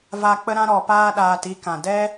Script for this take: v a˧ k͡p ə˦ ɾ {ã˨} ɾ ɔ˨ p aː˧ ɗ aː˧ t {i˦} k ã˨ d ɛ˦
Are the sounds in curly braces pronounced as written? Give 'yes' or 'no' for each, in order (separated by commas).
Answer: no, yes